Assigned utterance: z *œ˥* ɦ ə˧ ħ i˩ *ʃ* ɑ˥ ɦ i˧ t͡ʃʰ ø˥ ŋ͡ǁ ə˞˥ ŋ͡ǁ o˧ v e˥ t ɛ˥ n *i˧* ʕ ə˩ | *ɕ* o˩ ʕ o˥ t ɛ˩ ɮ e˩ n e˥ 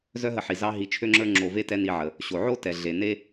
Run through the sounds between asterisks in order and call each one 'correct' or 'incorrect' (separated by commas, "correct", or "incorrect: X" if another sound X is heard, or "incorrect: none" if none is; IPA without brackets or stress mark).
correct, incorrect: z, correct, correct